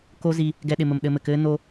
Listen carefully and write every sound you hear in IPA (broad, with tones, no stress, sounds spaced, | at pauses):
k o˦ z i˧ | ɡ ɛ˦ ɗ ɪ˧ m ə˧ m ɗ ɘ˧ m ɘ˨ k ɘː˦ n o˧